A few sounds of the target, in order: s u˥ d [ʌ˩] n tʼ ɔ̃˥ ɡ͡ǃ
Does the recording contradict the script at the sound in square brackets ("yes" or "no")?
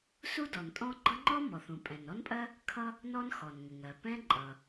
yes